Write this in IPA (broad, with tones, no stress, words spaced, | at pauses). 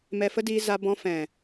mɛ˧fə˦diː˧za˧ bɔ̃˧fɛ̃˨